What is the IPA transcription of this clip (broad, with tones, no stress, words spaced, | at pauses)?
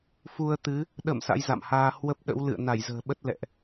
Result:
fu˧ə̯t̪ɨ˨˦ | ɗə̰˧˨m sa̰˧˥jza̰˧˨mhaː˧ hwə˦˥p̚ɗə̰˧˥w lɨ̰˧˨ə̯ na˧˩jzə̤ː˨˩ɓə˦˥t̚ lɛ̰˧˨ʔ